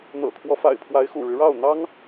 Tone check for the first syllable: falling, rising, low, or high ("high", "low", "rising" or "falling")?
low